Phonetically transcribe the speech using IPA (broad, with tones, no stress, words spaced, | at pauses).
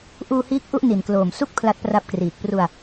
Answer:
ʔuː˧hiː˦˥k̚ ʔu˥˩ʔ ni˨˩nkloː˨˩msu˥˩k̚ pʰla˦˥t̚pra˦˥p̚kriː˨˩k̚ pru˧a̯